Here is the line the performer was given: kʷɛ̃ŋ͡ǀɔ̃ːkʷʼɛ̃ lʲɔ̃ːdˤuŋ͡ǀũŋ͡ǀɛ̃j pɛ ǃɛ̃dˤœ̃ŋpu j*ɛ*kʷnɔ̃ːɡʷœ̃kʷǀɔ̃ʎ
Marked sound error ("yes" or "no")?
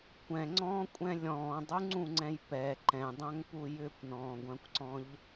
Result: yes